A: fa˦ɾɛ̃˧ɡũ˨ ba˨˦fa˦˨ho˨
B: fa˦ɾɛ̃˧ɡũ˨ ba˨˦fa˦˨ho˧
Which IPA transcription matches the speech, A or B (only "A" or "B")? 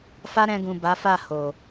A